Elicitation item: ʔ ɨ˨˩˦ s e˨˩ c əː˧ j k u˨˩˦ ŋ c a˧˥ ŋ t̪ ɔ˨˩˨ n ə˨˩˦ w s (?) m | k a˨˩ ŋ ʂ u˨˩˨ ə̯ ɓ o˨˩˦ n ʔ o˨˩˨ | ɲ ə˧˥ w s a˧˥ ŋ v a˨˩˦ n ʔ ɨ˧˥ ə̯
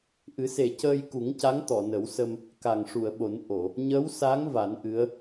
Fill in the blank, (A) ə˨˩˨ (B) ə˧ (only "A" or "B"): B